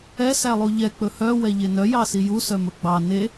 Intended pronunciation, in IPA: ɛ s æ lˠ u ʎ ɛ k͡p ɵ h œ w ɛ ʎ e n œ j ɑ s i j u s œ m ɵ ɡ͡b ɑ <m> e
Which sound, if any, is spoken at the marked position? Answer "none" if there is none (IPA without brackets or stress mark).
n